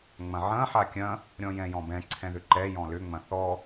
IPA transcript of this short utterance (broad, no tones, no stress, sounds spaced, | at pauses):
ŋ͡m ɐ̃ ʕ ɐ̃ ħ a kʲ ɐ̃ | ɾʲ ɔ̃ j ɛ̃ j ɔ̃ b ɛ̃ ǀʰ ɛ̃ ð ʏ ǃ ɛ j ɔ̃ l ʏ ŋ͡m ɐ̃ θ ɔ